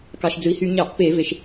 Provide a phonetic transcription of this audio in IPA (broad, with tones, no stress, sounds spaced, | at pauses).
k ɑ˩ ʃ d͡z ɯ˩ i̯ h y˧˩˧ ɲ ɑ˧˩˧ ʔ p e˧˩˧ v e˩ ʃ